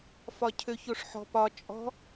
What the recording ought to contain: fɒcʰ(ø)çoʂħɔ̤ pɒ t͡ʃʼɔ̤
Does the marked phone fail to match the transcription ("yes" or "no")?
no